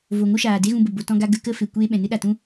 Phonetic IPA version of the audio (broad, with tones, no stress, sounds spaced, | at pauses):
v o˨ ŋ o˦ ʃ aː˨ d e˦ ɣ ũ˧ b ə˨ b o˨ t ɔ̃˧ ɡ a˧ ɡ ə˧ k ə˦ f e˨ kʷ eː˧ ɓ ɛ̃˨ n ɨ˦ ɗ a˨ t ũ˦